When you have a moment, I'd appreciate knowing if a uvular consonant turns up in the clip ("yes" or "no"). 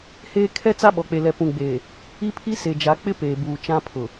no